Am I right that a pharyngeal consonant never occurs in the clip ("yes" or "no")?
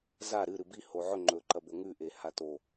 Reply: no